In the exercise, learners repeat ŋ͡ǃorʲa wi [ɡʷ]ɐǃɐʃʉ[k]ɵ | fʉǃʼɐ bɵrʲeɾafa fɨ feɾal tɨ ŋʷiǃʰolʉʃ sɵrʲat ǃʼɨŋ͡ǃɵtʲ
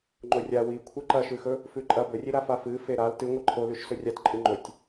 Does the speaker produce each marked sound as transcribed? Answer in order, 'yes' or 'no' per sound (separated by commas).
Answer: no, no